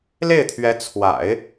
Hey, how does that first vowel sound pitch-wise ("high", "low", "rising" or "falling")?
falling